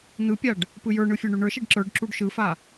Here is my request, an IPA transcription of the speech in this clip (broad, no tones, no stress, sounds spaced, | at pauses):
n̪ ɯ pʲ a ɖ | p ɯ j ə˞ ɳ ɯ fʲ ə˞ ɳ y ɳ ə˞ ʃ i ɖ ǁ ə˞ ɖ ǁ u ɖ ʃ ɯ f a